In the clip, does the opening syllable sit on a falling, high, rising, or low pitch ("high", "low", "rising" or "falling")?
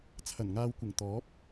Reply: low